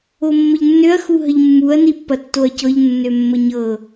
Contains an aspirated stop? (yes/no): no